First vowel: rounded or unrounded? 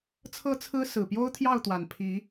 unrounded